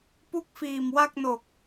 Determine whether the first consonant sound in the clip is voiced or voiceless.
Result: voiceless